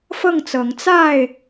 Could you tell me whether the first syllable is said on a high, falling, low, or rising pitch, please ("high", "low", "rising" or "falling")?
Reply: falling